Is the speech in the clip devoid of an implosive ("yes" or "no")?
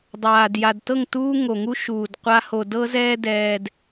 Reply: yes